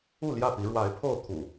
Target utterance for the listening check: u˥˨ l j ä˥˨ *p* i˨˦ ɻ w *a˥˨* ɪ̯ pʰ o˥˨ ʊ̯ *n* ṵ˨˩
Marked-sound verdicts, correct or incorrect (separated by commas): correct, incorrect, incorrect